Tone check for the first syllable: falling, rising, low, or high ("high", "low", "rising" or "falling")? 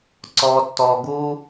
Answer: low